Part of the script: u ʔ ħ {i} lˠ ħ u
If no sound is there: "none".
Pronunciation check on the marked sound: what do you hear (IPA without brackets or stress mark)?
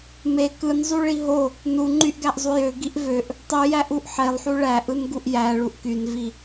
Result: e